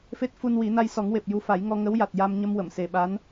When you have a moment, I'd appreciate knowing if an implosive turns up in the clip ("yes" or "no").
yes